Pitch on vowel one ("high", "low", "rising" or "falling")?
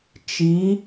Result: rising